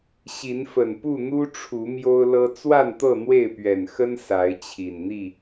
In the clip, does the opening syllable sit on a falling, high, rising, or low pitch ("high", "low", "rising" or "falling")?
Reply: rising